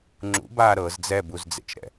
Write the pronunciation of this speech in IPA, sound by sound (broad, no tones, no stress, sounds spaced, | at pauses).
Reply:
ŋ͡ǁ ṵ b aː ɾ ɤ z d͡z ɛ b u z d͡z ḛ t͡ʃ ɾ ɛ̰